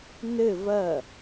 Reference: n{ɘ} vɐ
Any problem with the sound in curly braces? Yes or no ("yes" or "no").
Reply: no